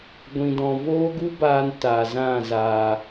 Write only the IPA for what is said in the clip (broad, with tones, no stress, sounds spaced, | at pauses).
ɡʷ ĩ˨ d ɔ̃˨ v oː˦ ɡ u˦ b aː˧ n t aː˨ z ã˦˨ z aː˨